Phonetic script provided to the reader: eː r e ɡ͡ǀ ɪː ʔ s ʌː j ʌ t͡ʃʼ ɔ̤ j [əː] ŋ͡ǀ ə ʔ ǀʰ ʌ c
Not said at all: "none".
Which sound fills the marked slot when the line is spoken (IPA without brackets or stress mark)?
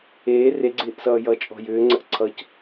ʏː